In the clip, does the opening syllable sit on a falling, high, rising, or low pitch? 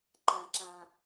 low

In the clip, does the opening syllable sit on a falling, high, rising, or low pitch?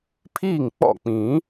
falling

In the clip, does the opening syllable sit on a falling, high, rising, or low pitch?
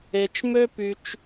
low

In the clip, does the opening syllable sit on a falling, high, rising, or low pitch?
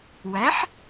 rising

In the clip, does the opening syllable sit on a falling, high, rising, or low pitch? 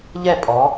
falling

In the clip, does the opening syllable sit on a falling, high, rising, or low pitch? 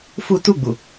high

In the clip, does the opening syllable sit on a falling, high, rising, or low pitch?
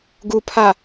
low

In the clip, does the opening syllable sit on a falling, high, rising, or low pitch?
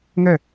falling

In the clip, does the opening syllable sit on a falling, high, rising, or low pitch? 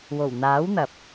low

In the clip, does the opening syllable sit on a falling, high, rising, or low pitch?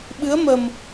rising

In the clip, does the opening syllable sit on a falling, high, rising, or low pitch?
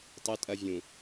high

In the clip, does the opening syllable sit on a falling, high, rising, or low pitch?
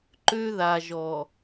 high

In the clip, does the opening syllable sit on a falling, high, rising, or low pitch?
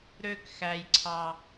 falling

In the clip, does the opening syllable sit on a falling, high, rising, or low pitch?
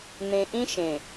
low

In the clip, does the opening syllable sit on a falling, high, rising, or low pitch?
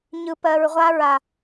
low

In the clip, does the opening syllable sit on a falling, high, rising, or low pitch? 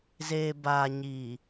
low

